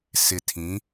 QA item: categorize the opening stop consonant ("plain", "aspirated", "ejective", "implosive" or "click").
aspirated